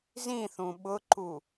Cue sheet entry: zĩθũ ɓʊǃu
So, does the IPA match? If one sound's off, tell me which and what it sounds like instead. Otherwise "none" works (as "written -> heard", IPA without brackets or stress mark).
none